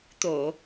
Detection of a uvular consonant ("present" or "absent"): absent